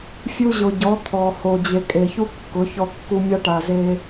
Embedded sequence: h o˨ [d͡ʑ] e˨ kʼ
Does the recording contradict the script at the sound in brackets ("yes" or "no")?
no